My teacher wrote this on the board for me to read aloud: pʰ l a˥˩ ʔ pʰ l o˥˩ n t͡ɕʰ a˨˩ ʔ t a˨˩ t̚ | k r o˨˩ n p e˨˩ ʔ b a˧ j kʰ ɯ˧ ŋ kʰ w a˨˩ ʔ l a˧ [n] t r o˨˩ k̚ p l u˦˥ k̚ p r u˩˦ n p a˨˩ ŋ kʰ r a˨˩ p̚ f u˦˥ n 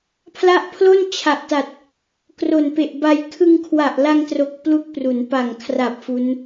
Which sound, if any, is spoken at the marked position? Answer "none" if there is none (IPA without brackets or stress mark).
ŋ